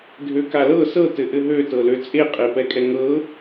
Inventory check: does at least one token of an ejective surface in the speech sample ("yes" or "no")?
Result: yes